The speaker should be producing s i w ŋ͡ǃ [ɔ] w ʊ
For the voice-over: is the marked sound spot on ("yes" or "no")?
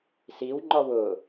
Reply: yes